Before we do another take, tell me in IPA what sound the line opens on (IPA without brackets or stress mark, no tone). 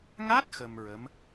ŋ